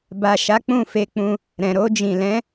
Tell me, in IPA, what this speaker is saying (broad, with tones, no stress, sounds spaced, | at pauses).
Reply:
b a˨ ʃ a˨˦ k͡p ũ˦˨ f e˧ k͡p ũ˧ | ɾ ɛ̃˨ ɾ o˧ d͡ʒ ĩ˨ l ɛ̃˨˦